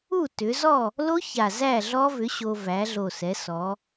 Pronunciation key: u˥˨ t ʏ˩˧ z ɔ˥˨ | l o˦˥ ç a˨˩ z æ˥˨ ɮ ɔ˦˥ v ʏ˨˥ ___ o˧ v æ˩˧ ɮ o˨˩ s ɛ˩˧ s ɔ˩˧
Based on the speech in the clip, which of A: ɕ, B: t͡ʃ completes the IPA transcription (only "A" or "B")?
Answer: A